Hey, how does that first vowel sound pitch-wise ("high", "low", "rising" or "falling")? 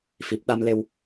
low